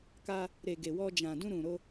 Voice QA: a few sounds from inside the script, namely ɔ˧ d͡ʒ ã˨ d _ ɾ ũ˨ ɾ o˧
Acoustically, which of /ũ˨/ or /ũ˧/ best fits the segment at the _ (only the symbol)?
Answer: ũ˧